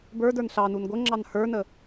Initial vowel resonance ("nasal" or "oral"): oral